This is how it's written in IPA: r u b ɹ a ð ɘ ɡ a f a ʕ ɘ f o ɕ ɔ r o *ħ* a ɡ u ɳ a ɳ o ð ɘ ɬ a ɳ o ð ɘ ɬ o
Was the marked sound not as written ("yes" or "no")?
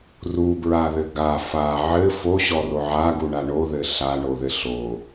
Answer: yes